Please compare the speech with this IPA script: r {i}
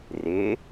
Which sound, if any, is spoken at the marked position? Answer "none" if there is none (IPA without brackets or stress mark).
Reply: ɪ